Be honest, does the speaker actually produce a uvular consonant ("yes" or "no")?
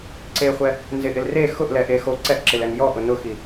yes